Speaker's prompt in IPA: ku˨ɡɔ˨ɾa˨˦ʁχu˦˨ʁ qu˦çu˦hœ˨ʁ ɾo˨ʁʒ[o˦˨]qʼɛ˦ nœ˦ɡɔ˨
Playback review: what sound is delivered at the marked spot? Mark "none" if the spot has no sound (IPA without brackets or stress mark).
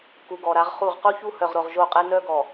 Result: o˦˨